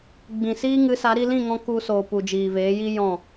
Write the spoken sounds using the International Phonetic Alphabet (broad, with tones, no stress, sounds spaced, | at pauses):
ɡ͡b ĩ˨ s iː˦ ŋ ɨ˨˦ s a˨˦ ɾ i˧ l ĩ˦˨ ŋ ɔ̃˧ k u˧ s oː˨ p u˨ d͡ʒ iː˨ v eː˨˦ j i˦ j ɔ̃˦˨